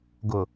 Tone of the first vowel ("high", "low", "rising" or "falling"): low